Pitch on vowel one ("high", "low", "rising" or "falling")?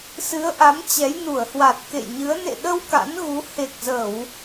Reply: rising